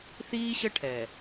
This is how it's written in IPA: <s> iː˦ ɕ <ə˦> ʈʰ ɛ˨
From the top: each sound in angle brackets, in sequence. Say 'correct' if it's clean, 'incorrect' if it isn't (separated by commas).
incorrect, correct